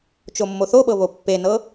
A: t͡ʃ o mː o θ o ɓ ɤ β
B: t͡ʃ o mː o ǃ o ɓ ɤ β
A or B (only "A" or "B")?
A